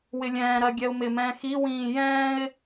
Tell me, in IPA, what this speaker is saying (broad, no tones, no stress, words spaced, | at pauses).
wɪlʲɛ̃ːɾɜ ɡʲɛʊ̯mɪmɛ̃ː xiwĩː jɛ̃ːɪ̯